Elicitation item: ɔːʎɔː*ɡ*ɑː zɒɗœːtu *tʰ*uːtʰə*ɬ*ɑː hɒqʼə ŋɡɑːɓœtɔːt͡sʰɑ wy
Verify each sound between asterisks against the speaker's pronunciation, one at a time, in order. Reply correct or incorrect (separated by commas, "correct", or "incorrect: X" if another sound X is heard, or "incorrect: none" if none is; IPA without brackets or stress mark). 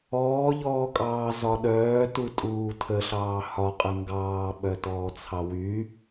incorrect: kʼ, incorrect: tʼ, correct